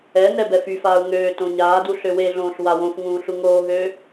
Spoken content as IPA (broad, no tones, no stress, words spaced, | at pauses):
ɛnɛ bɛfyfaːu̯ ŋøː tõɲaːdu ɬøweɮõːɬ wawõfŋũː ɬuŋoːɦøː